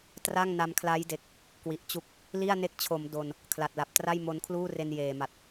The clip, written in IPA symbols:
tra˥˩ŋna˧mkʰla˦˥jde˨˩k̚ | kwi˨˩ʔt͡ɕu˥˩k̚ | li˥˩a̯ne˦˥k̚t͡ɕʰo˩˦m do˧n | kʰla˨˩t̚la˨˩p̚tra˥˩j mo˦˥nkʰluː˥˩re˧n jeː˨˩ma˨˩t̚

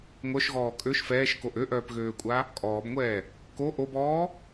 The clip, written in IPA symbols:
ŋʷœʃɣɔː kʼøʃ fɛːʃkoʔ øʔœːpɣøːkʷʼa | kʼɔːbŋʷɛː | ko ʔobɔː

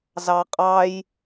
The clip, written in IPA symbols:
zɑqʼɑj

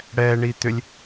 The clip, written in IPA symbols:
ɽɛɳi t̪ʏlʲ

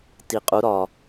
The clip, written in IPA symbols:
ti˨qʼu˨˦ɾɒ˨

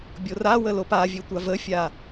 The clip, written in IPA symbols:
bʲorawə lopavʲe tʷavəfʲa

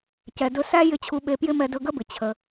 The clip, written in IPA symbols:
cɛ˩dɵ˧sæ˥ jɪ˧t͡ɕʰu˧ɓe˧pjɪ˥ mɛ˧dɵ˧ɡə˥bɪ˩ t͡ɕʰə˩

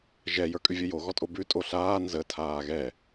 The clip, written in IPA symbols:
ʒɛ jə˞kʼʉvʲəjo ɣɔtʼobʉ tʼoɬaː nzə tʰaːɣɛ

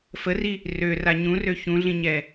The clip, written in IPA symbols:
fəri | røra ɲũrø çũɮĩɲɛ

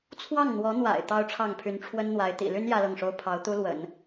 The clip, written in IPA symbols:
t͡sʰwɑ˥˩ŋn̪wɔ˧˥n̪wa̰˨˩ɪ̯ t̪ɑ˥ʊ̯ʈ͡ʂʰɑ˥˩ŋpʰy˧˥n ʈ͡ʂʰwə˥nn̪wa˧˥ɪ̯ t̪ḭ˨˩ly˥n jä˥lɤ˥˩ŋʂo˥ʊ̯ pʰɑ˧˥ʊ̯t̪u˥lwə̰˨˩˦n

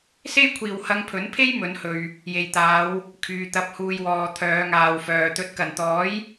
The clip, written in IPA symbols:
se˥jkʷʰiː˨w hɐ˧ŋpʰɵ˨˥npʰe˥j mɵ˨˥nhɵ˨ɥ | je˨jt̪aː˨˧w | kʰyː˨t̪ɐ˨˥p̚huː˨jwɔː˨ t̪ʰœː˨˧ŋaː˨wfœː˨ t̪ɵ˨˥t̚kɐ˨˩nt̪ɔː˨˥j

